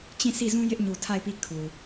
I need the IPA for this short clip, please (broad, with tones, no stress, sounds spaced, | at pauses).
t͡ɕ ĩ˦˨ sʰ i˦˨ z ũ˦ j ɪ˦ ʔ ɲ u˨ tʰ a˦˨ ɪ̯ p i˦˨ kʰ u˨